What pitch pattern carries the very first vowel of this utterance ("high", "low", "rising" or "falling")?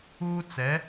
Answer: high